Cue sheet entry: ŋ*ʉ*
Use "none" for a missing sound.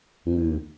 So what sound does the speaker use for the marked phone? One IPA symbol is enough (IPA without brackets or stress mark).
ʉ